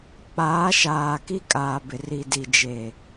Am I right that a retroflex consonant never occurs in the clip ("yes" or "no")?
yes